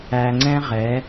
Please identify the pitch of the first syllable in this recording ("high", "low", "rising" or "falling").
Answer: low